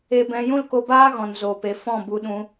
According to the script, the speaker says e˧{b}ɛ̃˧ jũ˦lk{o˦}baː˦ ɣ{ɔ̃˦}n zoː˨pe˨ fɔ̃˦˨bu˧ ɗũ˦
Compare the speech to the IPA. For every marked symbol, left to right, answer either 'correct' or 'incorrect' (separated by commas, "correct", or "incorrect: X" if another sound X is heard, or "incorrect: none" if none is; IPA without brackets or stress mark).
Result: correct, incorrect: o˧, incorrect: ɔ̃˨